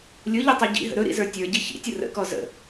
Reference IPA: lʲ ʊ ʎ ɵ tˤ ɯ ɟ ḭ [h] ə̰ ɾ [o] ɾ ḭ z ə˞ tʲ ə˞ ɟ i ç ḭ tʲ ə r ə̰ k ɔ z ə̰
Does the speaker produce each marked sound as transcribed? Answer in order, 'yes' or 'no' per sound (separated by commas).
no, no